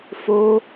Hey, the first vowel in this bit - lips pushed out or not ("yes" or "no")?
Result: yes